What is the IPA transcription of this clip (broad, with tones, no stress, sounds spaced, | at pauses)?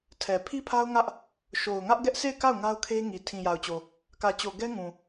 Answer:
tʰ ɛ˨ pʰ i˦ pʰ a˦ ʊ̯ ŋ ä˦ ʔ | ʃ o˨ ʊ̯ ŋ ä˦ ʔ ɡ ɛ˦ ʔ sʰ e˦˨ ɪ̯ k a˦˨ ʊ̯ ŋ a˦ ʊ̯ kʰ e˦ ŋ i˨ tʰ ĩ˨ j a˨ ʊ̯ t͡ɕ o˨ | k ä˨ t͡ɕ o˨ ɡ ɛ˦ ŋ ũ˨